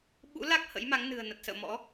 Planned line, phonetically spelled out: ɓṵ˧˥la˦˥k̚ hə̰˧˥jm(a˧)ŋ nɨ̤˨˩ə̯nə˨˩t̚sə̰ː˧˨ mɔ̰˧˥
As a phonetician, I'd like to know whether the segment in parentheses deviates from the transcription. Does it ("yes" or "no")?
yes